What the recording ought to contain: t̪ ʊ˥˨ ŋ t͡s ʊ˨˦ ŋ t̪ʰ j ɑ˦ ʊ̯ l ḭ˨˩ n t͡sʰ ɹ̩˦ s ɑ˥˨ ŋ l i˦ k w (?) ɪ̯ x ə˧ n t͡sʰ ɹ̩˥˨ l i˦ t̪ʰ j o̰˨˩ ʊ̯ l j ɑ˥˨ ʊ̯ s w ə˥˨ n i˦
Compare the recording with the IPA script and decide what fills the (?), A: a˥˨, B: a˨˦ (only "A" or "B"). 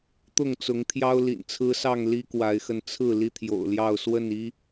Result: B